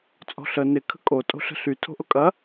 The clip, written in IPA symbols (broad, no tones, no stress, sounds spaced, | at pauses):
t͡sʼ ɔ̤ ɬ ə n ɪ kʰ ə̤ kʼ o tʼ o̤ ɬ ə̤ ɬ y tʰ o̤ ʔ ʊ kʼ ɐ